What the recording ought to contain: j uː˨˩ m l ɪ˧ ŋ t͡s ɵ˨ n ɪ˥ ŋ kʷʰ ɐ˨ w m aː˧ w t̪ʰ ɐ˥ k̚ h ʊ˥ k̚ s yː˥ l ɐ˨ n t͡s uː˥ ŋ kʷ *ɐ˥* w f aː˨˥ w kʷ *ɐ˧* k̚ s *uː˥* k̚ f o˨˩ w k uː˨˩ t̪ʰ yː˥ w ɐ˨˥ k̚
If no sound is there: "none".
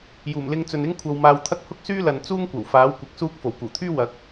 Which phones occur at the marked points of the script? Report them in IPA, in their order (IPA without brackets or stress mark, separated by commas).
ɐ˨˩, ɐ˧, uː˥